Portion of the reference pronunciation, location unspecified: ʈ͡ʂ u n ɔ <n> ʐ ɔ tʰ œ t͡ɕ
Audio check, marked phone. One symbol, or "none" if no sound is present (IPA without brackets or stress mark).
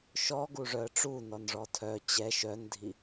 n